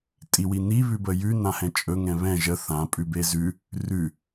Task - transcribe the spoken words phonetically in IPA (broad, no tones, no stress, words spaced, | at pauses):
tʼiwini βʉbəjʉ nãhɛ̃t͡ʃʼɵ ŋɛ̃βɛ̃ ʒə θã pʼʉbezʉ | rʉ